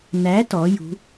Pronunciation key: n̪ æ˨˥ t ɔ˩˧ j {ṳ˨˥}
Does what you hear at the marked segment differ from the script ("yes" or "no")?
no